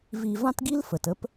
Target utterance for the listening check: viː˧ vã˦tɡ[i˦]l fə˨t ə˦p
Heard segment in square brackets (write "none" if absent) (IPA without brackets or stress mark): i˦